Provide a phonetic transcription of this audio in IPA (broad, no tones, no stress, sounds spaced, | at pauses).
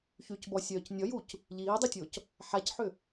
ç y c b ɔ sʲ œː c nʲ ɔ j u c | ʎ iː dˤ i tʲ o c | ħ a c ħ ʏ